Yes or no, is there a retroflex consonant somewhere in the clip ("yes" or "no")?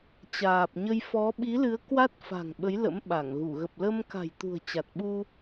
no